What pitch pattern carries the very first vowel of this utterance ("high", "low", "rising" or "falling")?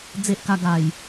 high